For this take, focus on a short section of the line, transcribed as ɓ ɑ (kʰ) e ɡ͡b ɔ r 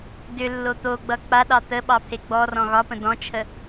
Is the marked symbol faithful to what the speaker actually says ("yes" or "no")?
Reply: no